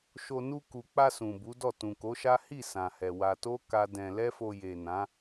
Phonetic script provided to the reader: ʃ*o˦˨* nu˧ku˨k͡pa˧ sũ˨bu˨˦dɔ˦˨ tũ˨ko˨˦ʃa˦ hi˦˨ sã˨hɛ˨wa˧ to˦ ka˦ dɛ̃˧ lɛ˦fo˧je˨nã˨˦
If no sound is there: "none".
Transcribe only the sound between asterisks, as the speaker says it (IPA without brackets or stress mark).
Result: o˧